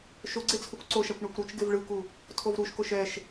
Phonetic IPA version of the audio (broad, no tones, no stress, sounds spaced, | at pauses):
ʃ o ɡ͡ǀ e t͡sʰ u kʷ ǀ o ʃ a kʷ ɳ ɛ kʷ ɾ u t͡ʃ ɡ e v ɭ ɯ k u | tʰ o v ɾ u ʃ k o ʃ ɛ ʃ